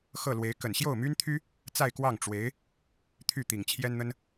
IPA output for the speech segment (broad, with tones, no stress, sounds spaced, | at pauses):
x ɤ˥˩ l w e˧˥ ɪ̯ k ə˨˩ n ɕ j o˥˩ ʊ̯ m y˥ n t̪ʰ y˥ | t͡s a˥˧ ɪ̯ k w ɑ˥˩ ŋ ʈ͡ʂ w e˧˥ ɪ̯ | t̪ʰ y˥˩ t̪ i˨˩ ŋ t͡ɕʰ j ɛ˥ n n̪ ə˥ n